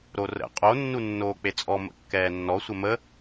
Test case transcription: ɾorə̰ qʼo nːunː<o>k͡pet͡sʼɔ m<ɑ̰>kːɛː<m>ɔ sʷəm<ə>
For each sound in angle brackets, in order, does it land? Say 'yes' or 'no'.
no, no, no, yes

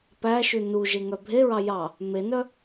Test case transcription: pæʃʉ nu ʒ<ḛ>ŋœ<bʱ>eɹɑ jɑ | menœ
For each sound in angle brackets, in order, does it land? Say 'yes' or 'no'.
no, yes

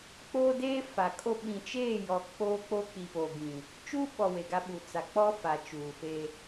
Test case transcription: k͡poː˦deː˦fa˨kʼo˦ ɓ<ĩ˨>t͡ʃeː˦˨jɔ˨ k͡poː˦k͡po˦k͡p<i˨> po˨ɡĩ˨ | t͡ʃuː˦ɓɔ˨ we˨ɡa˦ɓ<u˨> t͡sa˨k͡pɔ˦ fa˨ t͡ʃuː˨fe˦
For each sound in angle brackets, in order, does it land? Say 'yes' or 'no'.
yes, yes, yes

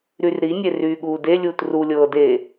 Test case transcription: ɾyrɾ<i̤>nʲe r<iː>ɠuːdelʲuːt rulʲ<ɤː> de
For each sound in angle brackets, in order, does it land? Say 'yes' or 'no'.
no, no, yes

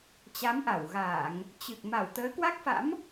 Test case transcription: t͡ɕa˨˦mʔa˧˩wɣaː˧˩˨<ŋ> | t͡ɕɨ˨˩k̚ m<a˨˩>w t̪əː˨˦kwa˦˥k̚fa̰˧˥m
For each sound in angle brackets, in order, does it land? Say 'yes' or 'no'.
yes, no

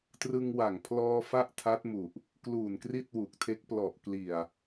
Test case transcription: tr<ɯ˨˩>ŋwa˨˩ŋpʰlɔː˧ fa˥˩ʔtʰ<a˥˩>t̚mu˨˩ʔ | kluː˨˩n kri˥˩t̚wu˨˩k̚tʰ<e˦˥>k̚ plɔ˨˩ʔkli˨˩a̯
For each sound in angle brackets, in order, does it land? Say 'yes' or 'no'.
no, no, yes

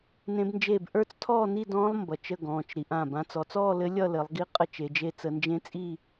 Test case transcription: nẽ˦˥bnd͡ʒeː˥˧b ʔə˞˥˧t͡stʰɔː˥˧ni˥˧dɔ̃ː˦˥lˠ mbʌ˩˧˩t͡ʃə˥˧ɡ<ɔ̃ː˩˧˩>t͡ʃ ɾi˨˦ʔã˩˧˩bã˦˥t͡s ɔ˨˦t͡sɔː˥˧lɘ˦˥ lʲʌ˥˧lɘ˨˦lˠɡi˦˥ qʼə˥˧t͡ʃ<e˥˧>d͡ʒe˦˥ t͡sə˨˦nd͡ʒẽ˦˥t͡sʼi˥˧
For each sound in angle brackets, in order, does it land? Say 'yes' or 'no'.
yes, no

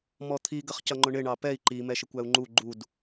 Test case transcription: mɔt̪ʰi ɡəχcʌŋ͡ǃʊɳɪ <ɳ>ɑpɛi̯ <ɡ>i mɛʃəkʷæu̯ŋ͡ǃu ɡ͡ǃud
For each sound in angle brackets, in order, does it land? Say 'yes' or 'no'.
yes, no

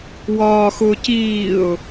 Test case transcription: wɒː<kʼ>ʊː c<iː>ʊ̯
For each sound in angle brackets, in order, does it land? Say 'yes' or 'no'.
no, yes

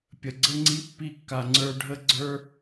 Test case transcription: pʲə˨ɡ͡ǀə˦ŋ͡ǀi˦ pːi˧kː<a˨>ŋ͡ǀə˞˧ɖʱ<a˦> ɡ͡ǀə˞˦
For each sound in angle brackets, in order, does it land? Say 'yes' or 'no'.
yes, no

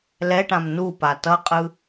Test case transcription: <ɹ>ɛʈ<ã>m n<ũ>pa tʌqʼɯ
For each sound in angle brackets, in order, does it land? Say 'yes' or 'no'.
no, yes, no

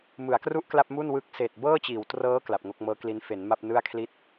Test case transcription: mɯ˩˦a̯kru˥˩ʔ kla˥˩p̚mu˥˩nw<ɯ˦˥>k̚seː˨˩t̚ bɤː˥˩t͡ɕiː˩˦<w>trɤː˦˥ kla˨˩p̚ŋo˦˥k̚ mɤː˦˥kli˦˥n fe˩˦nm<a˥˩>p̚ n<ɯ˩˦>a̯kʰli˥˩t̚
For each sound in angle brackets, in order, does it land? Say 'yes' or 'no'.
yes, yes, yes, no

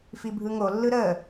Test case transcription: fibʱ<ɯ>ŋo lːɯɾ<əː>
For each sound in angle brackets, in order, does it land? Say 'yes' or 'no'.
yes, yes

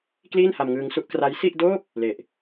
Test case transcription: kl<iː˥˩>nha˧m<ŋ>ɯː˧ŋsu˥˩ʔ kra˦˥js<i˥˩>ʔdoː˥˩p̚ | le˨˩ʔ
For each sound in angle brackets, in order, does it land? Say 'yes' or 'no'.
yes, yes, yes

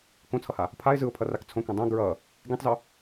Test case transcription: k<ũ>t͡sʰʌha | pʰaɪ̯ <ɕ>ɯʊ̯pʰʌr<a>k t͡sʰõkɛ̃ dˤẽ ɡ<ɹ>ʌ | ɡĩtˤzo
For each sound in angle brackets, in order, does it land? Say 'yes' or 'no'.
no, no, yes, yes

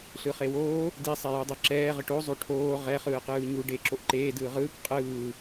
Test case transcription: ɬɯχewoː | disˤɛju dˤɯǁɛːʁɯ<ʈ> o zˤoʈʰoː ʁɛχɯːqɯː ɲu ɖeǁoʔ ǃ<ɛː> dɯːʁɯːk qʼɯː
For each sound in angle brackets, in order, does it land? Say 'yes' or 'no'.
yes, no

